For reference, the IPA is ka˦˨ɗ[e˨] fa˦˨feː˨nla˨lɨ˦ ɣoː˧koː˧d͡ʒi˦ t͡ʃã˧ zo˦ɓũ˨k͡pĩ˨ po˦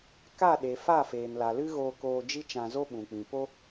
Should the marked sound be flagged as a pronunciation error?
no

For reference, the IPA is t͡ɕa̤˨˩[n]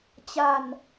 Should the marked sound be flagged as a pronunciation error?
no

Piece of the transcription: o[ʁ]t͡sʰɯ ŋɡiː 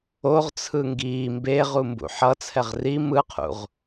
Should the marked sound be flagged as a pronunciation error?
no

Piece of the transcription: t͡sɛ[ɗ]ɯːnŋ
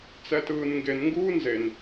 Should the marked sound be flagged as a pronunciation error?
yes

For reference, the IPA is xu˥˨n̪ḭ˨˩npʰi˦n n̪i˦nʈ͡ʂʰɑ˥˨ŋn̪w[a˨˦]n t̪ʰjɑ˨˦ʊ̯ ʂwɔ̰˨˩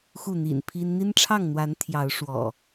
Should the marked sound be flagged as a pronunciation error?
no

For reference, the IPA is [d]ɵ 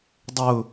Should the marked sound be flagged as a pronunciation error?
yes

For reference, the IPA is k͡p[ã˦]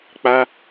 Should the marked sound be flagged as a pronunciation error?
yes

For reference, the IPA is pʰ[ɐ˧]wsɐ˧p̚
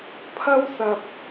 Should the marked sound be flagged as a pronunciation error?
yes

